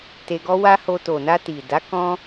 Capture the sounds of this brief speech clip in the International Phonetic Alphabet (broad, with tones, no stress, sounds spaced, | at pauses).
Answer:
t e˧ ɡ ɔ˦ w a˦ h o˧ t o˨ n a˧ t i˨ d a˨˦ k ɔ̃˦